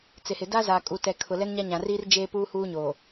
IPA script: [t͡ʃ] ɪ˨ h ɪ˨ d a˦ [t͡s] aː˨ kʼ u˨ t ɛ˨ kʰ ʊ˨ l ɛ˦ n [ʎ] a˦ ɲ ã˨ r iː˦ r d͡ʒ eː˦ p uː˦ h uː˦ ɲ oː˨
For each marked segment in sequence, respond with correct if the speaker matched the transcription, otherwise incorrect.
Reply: incorrect: t͡s, incorrect: z, incorrect: ɲ

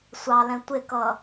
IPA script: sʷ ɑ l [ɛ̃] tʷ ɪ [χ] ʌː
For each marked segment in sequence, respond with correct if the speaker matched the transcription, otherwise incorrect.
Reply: correct, incorrect: k

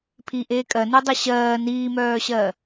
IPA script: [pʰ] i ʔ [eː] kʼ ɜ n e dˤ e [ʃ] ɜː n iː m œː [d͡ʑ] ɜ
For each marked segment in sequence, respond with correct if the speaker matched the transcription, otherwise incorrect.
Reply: correct, correct, incorrect: ɕ, incorrect: ɕ

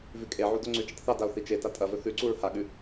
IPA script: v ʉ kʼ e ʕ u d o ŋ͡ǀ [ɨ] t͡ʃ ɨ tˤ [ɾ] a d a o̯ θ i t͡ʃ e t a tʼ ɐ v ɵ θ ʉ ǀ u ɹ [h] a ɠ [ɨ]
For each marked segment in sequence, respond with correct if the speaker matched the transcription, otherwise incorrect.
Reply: incorrect: ʉ, incorrect: θ, correct, incorrect: ʉ

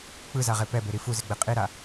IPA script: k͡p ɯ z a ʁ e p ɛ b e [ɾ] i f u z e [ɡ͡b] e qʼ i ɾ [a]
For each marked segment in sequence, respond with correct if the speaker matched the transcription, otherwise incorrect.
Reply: correct, correct, correct

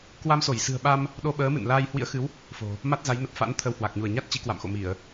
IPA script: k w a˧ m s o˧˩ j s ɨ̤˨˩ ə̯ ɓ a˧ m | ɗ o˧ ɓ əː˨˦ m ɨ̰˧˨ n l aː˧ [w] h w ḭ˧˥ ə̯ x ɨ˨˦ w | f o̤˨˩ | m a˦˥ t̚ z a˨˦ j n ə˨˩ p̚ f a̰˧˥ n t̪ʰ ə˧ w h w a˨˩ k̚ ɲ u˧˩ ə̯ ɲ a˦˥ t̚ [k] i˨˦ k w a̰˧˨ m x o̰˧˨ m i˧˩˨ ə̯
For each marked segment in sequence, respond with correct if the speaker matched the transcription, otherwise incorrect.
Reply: incorrect: j, incorrect: t͡ɕ

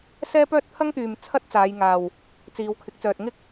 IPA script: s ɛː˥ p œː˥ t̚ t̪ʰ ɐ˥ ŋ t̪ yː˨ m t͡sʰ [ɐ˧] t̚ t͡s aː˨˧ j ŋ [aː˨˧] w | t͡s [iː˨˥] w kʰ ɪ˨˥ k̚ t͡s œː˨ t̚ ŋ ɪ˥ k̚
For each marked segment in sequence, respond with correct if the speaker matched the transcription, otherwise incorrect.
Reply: incorrect: ɐ˥, incorrect: aː˨, incorrect: iː˨˧

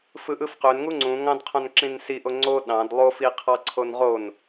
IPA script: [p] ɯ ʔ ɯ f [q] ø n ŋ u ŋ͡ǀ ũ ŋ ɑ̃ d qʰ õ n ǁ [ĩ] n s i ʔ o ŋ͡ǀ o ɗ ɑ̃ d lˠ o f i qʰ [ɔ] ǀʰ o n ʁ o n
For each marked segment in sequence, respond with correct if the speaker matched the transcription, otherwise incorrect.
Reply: incorrect: f, correct, correct, incorrect: ɑ

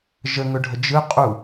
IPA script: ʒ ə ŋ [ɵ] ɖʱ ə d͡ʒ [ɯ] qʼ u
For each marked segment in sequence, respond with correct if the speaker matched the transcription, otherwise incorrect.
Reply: correct, correct

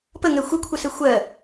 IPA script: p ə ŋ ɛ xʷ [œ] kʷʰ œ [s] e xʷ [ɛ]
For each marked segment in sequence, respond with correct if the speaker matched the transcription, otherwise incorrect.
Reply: correct, correct, incorrect: ɜ

